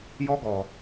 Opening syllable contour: high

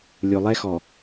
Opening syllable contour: low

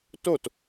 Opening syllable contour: falling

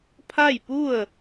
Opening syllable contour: falling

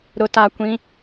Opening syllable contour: low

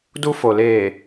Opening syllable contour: high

